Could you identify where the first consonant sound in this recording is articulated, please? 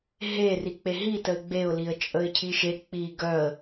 glottal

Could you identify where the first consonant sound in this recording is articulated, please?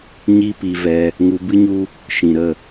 palatal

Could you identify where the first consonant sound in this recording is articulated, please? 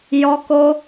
palatal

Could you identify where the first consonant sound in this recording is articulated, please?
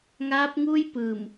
velar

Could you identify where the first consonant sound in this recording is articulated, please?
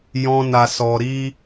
palatal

